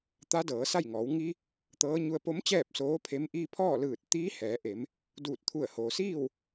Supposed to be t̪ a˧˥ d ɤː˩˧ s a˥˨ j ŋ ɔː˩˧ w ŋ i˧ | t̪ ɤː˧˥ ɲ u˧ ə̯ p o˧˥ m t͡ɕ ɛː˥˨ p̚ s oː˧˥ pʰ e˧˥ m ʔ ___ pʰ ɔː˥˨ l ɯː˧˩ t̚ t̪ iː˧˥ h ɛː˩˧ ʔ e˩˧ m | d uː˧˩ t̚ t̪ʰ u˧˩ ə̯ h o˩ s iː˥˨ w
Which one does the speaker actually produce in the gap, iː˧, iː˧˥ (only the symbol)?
iː˧